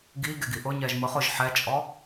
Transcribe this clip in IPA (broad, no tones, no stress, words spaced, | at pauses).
ɡi ɡeɡiʔʊɲɛʒ mʊχ ʊʒ ħɛt͡ʃʼɔ